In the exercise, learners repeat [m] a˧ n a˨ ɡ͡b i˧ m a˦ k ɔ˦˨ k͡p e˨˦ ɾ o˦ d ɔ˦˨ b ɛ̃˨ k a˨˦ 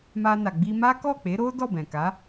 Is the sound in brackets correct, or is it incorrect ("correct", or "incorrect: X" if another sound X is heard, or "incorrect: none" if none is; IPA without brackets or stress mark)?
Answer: correct